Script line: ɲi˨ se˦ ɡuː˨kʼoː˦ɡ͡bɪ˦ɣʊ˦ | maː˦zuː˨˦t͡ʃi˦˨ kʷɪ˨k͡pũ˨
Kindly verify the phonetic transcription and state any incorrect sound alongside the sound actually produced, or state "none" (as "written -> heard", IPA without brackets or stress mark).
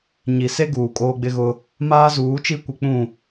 none